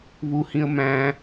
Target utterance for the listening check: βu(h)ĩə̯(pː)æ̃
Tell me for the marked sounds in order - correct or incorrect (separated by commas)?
correct, incorrect